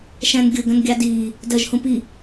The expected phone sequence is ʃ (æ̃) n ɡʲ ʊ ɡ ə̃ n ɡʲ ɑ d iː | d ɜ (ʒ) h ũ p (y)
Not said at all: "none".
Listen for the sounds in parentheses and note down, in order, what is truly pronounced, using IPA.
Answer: æ̃, ʒ, i

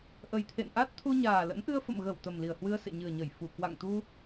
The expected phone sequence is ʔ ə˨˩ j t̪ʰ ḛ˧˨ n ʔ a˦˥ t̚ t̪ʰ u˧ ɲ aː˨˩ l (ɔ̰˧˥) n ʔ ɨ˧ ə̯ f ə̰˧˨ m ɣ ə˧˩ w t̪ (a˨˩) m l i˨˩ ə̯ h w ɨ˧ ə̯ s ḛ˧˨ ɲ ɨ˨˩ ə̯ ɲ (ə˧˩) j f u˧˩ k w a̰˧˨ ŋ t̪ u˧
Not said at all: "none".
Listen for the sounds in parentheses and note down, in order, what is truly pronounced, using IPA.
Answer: ə̰˧˥, ə˨˩, ə˧˩

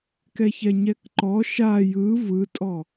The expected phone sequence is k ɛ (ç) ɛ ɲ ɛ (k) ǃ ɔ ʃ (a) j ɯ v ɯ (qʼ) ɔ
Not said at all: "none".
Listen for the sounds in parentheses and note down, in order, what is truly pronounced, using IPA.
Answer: ç, k, a, tʼ

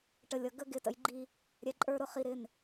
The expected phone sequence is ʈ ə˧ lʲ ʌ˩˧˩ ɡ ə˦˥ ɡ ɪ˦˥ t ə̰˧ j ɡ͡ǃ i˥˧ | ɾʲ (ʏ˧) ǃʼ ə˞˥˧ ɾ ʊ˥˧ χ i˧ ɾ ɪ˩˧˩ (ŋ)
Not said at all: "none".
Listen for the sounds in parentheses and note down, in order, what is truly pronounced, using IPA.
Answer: ɛ˧, n

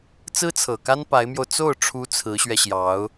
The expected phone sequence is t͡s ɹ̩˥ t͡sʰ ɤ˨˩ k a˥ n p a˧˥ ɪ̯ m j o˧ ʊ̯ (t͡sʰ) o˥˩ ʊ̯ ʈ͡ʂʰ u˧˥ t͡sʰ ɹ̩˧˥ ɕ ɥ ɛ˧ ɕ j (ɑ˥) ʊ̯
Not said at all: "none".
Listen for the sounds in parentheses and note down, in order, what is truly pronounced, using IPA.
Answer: t͡s, ɑ˧˥

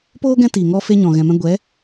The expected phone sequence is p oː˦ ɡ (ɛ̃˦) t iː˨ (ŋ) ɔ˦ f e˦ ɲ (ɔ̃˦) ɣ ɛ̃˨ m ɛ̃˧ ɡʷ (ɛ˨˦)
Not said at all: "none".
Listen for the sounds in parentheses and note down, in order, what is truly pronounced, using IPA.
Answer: ɛ̃˦, ŋ, ɔ̃˨, ɛ˨˦

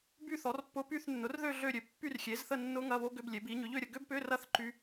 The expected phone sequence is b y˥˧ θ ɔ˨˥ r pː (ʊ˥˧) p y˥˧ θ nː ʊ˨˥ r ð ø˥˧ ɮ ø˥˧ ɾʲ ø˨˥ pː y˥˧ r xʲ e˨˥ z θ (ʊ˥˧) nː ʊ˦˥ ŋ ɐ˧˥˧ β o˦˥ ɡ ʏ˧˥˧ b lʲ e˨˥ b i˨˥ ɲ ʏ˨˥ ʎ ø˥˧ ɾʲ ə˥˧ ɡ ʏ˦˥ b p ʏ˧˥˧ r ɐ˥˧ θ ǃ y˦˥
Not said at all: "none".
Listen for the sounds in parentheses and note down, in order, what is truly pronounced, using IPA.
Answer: ʊ˦˥, ə˥˧

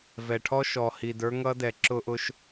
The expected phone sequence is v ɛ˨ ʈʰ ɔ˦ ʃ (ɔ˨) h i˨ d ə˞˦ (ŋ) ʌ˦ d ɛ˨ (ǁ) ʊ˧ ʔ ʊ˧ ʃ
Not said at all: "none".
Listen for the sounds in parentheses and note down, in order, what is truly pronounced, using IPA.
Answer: ɔ˨, ŋ, ǁ

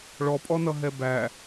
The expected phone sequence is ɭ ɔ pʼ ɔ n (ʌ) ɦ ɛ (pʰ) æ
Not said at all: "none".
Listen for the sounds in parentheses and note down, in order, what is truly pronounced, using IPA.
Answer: ʌ, b

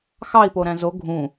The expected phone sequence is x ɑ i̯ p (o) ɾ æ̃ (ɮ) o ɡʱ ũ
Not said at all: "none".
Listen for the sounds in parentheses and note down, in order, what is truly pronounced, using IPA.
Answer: o, z

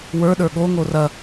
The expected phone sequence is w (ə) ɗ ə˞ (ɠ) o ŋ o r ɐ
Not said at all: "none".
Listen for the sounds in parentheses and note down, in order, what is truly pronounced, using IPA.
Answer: ə˞, ɠ

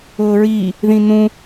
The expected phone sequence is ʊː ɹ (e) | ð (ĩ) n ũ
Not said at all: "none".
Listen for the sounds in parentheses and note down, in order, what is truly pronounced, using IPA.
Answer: i, ĩ

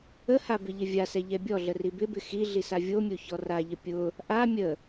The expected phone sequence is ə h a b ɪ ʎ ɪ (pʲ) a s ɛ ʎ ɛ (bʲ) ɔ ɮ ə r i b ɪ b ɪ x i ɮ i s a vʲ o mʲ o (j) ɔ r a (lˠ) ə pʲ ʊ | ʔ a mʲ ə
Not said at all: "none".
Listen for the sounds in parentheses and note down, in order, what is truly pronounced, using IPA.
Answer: vʲ, bʲ, ç, ʎ

